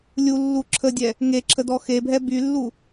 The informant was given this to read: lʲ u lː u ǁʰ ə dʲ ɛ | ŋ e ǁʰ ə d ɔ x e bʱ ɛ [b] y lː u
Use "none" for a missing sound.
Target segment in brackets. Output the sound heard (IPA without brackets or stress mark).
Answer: b